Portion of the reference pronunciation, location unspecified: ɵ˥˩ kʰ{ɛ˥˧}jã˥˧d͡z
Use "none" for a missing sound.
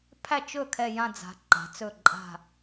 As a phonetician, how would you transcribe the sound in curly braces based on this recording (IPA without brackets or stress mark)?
ɛ˥˧